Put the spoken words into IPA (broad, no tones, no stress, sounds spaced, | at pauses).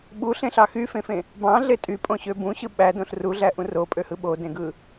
ɓ u ɬ ẽ ɬ ɑ x y f ẽ f ẽ | b ɑ̃ ɮ e tʼ y pʼ õ ɕ ø b ũ ɕ ɯ ɓ æ d õ ɬ r u ɮ æ ʔ ũ r o pʼ ø h ɯ ɓ o d ẽ ɡ ɯ